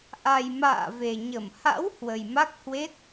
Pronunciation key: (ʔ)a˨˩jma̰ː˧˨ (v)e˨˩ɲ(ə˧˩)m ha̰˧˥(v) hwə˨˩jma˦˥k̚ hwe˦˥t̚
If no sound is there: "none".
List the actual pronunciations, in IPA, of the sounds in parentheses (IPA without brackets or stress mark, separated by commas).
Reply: ʔ, v, ə˧˩, w